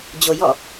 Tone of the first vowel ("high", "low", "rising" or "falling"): low